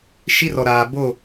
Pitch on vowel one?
high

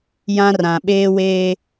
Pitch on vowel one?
high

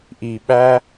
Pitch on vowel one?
low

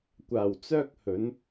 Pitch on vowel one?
low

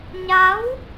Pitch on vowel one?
rising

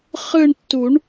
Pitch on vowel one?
falling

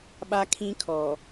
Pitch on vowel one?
high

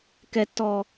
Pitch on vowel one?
high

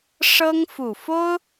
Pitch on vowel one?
high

